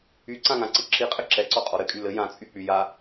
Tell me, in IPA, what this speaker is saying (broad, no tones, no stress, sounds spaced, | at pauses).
y ǀ ã ŋ ã ǀ ɘ ǁ i qʼ ɘ ǁ ɛ ǀ ɔ qʼ ɔ ɾ ɘ kʼ y l ɘ j ã t͡sʼ y k͡p y j a